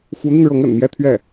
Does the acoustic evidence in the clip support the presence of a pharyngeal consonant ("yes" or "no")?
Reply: no